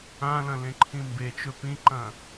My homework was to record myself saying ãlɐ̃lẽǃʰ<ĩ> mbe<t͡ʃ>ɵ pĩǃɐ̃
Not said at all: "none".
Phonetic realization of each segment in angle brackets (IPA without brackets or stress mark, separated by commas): ĩ, t͡ʃ